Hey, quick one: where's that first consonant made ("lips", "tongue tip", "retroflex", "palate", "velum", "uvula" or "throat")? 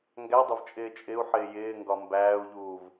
velum